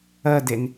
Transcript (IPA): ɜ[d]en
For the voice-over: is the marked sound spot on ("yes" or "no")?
yes